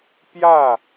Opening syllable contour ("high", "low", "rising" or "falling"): falling